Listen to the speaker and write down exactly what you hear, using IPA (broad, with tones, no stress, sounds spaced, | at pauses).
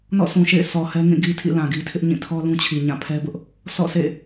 n ɔ̰˦˨ sʰ ũ˨ ʃ ḛ˦˨ ɪ̯ s ɔ˨ h ɛ˦ ŋ ĩ˦˨ ɡ i˦ tʰ ḭ˦˨ l ã˨ ɡ i˦ tʰ ɪ˦ ʔ ɲ ĩ˦˨ tʰ ɔ˦ l ũ˦ t͡ɕʰ i˨ ɲ ã˦˨ pʰ ɛ˦ b ʊ˦ ʔ | s ɔ̰˦˨ sʰ ḛ˦˨